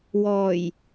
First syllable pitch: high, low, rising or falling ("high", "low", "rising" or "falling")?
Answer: low